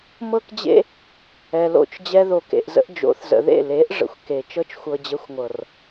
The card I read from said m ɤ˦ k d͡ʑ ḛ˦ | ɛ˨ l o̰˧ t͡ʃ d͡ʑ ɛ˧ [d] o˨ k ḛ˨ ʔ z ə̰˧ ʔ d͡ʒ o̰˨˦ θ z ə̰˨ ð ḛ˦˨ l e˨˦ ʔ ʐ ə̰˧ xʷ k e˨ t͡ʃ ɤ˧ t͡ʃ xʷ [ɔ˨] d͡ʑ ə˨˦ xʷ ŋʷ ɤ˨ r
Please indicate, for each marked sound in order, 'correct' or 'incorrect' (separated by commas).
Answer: incorrect, incorrect